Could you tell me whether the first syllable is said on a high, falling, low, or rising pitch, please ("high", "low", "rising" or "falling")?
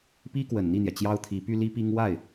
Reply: high